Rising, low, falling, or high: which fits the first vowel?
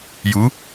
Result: rising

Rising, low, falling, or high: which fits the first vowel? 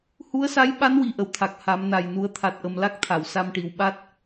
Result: rising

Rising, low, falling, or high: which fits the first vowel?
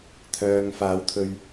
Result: low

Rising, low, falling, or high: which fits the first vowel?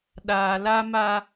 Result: low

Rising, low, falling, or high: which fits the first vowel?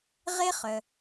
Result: high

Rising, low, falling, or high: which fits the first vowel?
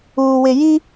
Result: low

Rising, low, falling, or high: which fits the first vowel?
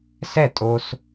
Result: falling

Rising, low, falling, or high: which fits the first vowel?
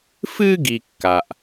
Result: high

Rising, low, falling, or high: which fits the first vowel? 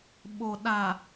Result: low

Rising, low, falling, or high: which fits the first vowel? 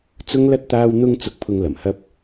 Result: high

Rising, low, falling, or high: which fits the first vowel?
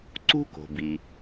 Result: high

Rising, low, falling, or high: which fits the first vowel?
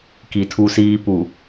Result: low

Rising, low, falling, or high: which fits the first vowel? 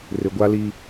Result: low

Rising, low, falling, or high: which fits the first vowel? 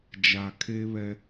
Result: low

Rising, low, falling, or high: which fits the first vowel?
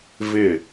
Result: falling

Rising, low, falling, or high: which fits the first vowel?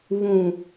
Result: low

